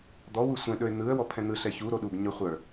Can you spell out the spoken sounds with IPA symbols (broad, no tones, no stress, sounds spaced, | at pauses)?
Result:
d̪ ɔ w u sʷ ɛ̃ ɗ ɵ ɪ̯ n̪ ɯ ə̯ w ɔ pʰ ɛ̃ n̪ ɯ ɬ ɛ ç u ɾ o ɗ u ɡ ɲ ɵ χʷ ə˞